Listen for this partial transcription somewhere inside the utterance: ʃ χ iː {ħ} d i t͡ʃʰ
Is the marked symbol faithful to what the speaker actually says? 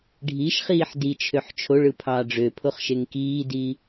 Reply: yes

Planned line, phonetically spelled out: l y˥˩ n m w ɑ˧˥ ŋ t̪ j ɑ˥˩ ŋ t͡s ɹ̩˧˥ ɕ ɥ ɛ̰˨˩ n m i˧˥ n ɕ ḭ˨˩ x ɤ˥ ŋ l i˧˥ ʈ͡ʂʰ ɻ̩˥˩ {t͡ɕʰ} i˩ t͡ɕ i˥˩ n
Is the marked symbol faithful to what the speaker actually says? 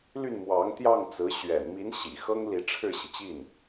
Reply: no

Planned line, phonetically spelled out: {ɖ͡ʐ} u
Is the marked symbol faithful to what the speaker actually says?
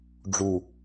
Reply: yes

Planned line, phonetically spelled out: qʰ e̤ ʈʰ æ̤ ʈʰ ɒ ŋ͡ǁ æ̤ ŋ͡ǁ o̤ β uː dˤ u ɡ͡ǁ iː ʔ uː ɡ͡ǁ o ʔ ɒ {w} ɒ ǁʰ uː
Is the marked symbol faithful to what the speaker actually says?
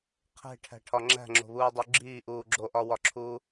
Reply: yes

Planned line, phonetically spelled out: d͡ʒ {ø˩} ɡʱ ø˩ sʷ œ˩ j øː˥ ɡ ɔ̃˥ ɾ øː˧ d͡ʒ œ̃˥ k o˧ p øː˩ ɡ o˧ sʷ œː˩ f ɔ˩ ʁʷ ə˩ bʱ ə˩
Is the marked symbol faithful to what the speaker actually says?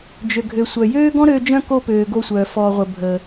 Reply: yes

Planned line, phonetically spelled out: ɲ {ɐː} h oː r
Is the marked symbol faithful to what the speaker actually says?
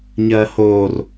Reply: yes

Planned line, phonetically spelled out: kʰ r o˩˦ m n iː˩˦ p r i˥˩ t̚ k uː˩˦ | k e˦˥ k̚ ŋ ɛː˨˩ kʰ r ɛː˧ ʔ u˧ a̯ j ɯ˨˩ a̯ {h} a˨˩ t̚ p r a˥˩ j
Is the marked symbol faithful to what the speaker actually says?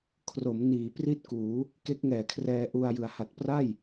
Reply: yes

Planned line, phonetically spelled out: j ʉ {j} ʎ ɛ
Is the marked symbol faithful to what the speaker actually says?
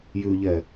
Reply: no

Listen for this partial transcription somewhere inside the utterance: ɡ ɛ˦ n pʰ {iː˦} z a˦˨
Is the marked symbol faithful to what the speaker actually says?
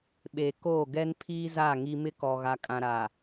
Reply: yes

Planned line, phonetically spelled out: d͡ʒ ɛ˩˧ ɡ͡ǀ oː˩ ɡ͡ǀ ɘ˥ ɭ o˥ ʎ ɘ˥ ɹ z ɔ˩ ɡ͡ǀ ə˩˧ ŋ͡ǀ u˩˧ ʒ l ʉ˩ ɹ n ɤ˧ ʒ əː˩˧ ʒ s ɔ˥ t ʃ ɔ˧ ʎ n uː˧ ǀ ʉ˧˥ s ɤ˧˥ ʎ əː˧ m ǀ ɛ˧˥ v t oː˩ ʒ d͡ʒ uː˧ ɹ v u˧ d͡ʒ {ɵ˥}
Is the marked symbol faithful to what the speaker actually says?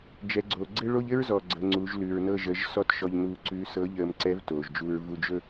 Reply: yes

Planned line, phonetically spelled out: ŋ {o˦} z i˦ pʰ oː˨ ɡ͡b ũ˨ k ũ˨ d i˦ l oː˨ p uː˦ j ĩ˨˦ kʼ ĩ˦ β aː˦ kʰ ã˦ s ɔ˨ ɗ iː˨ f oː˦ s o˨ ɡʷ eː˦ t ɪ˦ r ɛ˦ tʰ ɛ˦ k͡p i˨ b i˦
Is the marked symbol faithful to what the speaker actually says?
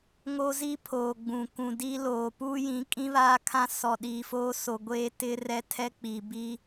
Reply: yes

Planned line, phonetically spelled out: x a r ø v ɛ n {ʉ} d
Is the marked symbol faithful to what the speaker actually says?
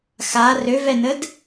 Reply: no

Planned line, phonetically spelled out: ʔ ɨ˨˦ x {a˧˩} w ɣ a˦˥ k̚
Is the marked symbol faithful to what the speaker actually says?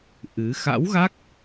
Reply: no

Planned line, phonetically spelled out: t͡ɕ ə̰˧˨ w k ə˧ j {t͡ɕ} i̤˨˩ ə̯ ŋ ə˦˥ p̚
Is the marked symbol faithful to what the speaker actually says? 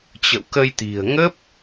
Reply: no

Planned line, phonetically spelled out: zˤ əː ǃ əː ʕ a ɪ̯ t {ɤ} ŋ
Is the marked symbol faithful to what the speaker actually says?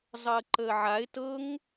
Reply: yes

